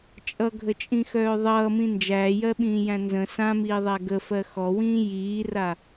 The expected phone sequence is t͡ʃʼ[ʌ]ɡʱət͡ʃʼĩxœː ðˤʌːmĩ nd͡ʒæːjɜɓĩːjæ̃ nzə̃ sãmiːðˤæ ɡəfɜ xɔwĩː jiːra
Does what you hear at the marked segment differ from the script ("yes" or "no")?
no